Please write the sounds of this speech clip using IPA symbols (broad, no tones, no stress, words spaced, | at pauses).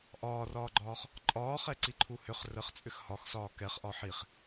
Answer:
ʔɒːrɒːɡ͡ǃɒːχ | ǃʼɒːχɛǀiǃʰu hʏχ rəχt͡sʼʏx hɒxsɒː kɛχʔɒ ħiχ